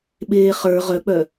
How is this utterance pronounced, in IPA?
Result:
ɓ eː χ ə˞ ʁ œ k͡p œ

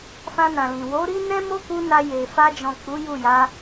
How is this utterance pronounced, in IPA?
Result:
f ã˧ n ã˨ l ĩ˨ w o˨˦ ɾ i˦ n ɛ̃˦ m o˦ k u˧ n a˧ j e˨ f a˧ d͡ʒ ɔ̃˨ k͡p u˨˦ j u˦˨ j a˨˦

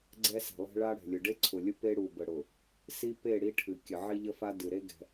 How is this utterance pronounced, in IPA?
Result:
ɡ͡ǀ ɛ˦ s ɛ̤˨ lˠ ɛ̤˦ ɭ a˦ ɽ ɛ̤˨ lʲ ʊ˨ ɖ e˦ ǀʰ ʊ˨ lʲ ʊ˦ p e˦ ɽ u˨ b ə˨ ɽ ʊ˨ | s i˦ p e˦˨ ɽ i˦ ʈʰ ɨ˨ kʲ ə˨ ʕ i˦ ʎ ə˦ f a˦ d ɨ˨ ɾ e˦ ɡ ɛ̤˦

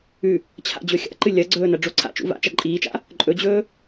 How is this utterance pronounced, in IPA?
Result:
ʉ | t͡ɕʰ a̰ d͡ʑ ɵ xʲ a̰ ǃ ɨ lʲ ɐ ɡ͡ǀ ɵː n ɐ ɖ͡ʐ o ǀʰ a̰ t͡ʃ ṵ v a̰ t͡ʃ ɐ ǃʼ iː t͡ʃ a̰ | ǃʼ ɵ d͡ʑ ɵː

